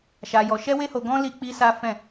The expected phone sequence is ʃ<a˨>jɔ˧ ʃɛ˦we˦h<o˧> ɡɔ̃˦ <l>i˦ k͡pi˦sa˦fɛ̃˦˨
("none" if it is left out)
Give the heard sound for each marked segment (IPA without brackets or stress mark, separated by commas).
a˧, o˧, l